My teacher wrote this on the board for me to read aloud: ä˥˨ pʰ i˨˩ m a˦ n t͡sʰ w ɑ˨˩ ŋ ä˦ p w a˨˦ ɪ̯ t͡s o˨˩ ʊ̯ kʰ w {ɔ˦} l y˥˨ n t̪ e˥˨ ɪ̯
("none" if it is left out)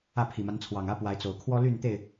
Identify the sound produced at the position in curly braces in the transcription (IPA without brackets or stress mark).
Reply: ɔ˦